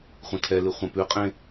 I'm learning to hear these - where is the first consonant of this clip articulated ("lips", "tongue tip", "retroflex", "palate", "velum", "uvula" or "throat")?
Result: uvula